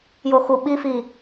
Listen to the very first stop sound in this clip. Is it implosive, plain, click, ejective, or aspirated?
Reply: implosive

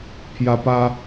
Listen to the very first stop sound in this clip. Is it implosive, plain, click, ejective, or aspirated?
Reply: aspirated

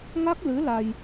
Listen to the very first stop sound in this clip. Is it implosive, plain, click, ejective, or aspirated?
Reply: plain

